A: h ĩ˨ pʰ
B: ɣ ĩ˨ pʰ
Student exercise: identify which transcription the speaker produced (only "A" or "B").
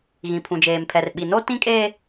B